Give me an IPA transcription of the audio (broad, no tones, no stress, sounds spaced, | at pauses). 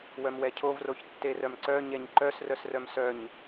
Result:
w œ m w ɛ cʰ o v r o ç tː e r œ m ǀ œ ɲ ɛ ɲ ǃ œ s r œ s r œ m s œ ɲ